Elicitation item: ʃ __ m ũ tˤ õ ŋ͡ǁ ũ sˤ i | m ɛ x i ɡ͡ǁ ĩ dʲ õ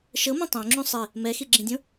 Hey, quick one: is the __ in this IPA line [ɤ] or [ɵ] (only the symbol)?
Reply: ɤ